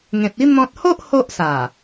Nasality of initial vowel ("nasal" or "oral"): nasal